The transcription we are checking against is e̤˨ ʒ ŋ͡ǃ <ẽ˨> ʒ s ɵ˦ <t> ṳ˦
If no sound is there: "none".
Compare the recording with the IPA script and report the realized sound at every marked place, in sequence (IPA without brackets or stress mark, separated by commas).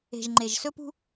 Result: e˨, p